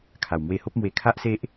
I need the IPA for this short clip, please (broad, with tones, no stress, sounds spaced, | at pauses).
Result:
kʰ a˨˩ w m w e˧ h o˦ p̚ m w e˧ kʰ a˦ ʔ s e˦ ʔ